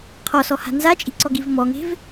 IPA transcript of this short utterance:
qʰ ɔ s ɔ h a̤ n z a t͡ʃʼ i̤ ǀ ɔ ɡ i v m ɔ ŋ e̤ v

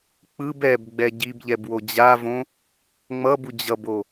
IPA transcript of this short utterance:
k͡p ɯ b ɛ b ɡ͡b ɛ ɟ i b ʎ ɛ b w o d͡ʑ a v õ | ŋ͡m ʌ b u d͡ʑ ʌ b o

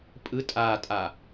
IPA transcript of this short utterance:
pʼ ɯ tʼ a tʼ a

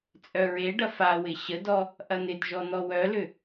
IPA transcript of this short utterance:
t͡sʼ œ ɹ e ɖ ɐ f a w ɪ ɕ ə d ɔ | ʔ ɐ n̪ ɪ d ʒ ɔ n̪ ɔ w œ l ʏ

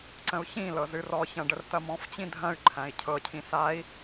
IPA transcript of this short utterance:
ǀ ə̃ u̯ ç ĩ l ɤ z ɨ r ɔ ç ɐ̃ ɖ ə r t ɐ m ɔ̃ f t͡ɕ ĩ dʱ ɐ̃ y̯ ǃʰ æ̃ i̯ cʰ ɤ cʰ ĩ s a i̯

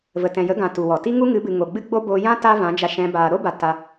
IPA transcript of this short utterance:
v ə˨ t ɛ̃˨ j ə˨˦ ɡ ã˨ t u˨ w ɔ˨ t i˦ ŋ u˦ ŋ ɨ˨˦ b ɨ˨ ŋ o˨ ɡ͡b ɨ˦ ɡ͡b o˦ b o˧ j ã˦ t a˦ v ã˨˦ d͡ʒ a˧ ʃ ɛ̃˧ b aː˨ ɾ o˦ b a˨ t a˧

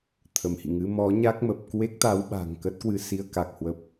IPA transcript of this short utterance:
t̪ʰ ə˧˩ m h ḭ˧˨ ŋ ɨ˨˦ m ɔ˨˦ ɲ a˦˥ k̚ m ə˨˩ p̚ k w e˦˥ k̚ t̪ a˨˦ w ɓ a̤˨˩ ŋ k ə˦˥ t̚ k w ɨ˧ s i˧ ə̯ k a˨˩ k̚ h w ə˨˩ p̚

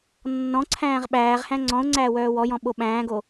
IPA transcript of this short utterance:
nː ɔ̃ ǀʰ æ̃ː ʁ ɓ æː ʁ h æ̃ ŋ͡ǀ ɔ̃ ʊ̯ ŋ͡ǀ æː w œː w ɔ j ɔ̃ ɓ o ɓ æ̃ː ɡ o

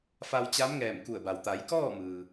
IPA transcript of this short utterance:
f a˧ w t͡ɕ a˧˥ m ŋ ɛː˧˩ m k u˧˩ ə̯ b a˩ w t̪ a˩˧ j k ɔː˥˨ m ɯː˩

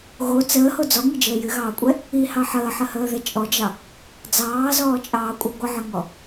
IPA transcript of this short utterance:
ɣ o t͡s əː h o d͡z ɔ ŋ ɨ d͡ʒ əː j ɨ ɣ ɑː kʷʼ ɛ | i h ɑ ħ əː ħ ə h əː ð ɛ t͡ʃʼ ɔ d͡ʒ ɑ | d͡z ɑː z ɔː t͡ʃʼ ɑː kʷʼ ɛ ɡʷ ə ʕ ə ŋ ɔ

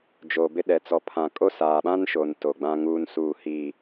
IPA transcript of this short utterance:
d͡ʒ oː˨ b ɪ˦ ɗ ɛ˨ t͡s ɔ˨ pʰ ã˨ kʼ o˦ s aː˨ ɓ ã˦ n ʃ o˨ n t o˨ ɡ͡b ã˦ ŋ uː˦ n s uː˦˨ h i˦˨

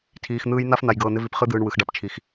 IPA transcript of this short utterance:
tʰ iː˧ x n̪ ɯː˦ j n̪ a˦ f n̪ a˧ j ɡ ɤː˧ n̪ ɪ˦ v i˧ p χ ɯ˦ d̪ ɯː˧ ɳ w ɯ˧ x ɖ a˦ p t͡ʃʰ i˧ x

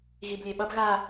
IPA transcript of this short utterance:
ɣ i b lʲ e ɓ ʌ b ɣ a

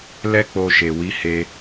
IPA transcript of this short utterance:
l ɛ˦ k͡p o˧ ʃ e˨ w i˨˦ h e˧

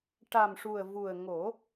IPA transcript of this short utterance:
ʈ a˨˩ m ʂ u˨˩ ə̯ v u˨˩ ə̯ ŋ o˨˩˦

